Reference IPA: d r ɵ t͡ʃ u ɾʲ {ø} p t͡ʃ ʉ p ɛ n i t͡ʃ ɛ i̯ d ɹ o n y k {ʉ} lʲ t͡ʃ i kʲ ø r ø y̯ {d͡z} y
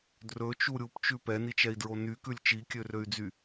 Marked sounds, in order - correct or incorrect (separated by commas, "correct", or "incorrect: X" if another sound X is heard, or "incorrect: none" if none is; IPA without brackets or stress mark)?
incorrect: u, correct, correct